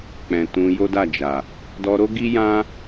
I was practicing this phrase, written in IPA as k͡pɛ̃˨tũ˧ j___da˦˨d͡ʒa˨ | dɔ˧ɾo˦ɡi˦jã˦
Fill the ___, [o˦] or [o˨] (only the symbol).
o˦